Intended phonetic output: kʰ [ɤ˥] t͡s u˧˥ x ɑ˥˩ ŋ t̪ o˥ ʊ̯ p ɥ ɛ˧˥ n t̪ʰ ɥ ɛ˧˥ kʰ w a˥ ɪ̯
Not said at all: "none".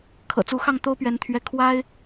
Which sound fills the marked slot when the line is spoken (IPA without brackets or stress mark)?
ɤ̰˨˩